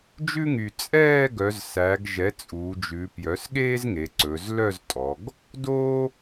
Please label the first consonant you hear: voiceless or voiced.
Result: voiced